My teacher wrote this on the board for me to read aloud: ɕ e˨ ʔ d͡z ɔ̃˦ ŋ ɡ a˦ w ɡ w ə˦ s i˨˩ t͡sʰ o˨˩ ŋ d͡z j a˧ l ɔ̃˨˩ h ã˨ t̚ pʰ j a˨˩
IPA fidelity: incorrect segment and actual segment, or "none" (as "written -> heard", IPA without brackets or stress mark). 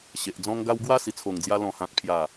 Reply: ə˦ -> a˦